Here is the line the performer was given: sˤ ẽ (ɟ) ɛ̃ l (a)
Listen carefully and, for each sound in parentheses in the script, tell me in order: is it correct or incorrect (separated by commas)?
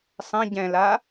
correct, correct